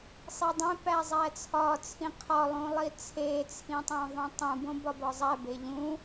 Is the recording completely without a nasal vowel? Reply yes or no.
no